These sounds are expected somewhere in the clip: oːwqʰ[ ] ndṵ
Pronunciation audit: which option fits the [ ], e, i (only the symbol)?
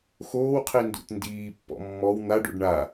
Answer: i